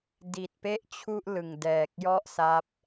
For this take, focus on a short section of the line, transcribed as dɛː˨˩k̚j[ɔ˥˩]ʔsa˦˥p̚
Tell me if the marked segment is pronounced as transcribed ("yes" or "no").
yes